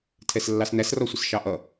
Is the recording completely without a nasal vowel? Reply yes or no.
yes